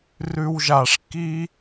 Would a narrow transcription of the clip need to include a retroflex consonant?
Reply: yes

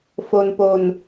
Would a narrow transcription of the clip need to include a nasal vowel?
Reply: no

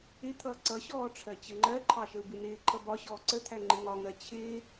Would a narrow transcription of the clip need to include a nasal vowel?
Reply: no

